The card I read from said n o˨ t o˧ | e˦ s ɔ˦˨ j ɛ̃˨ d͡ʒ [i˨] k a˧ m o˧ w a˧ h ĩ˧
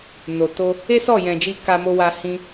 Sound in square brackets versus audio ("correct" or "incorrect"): incorrect